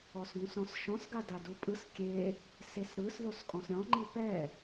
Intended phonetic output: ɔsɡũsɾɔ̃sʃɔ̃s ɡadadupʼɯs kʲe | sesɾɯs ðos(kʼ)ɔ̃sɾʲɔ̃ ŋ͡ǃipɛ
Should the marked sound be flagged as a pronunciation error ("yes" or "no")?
no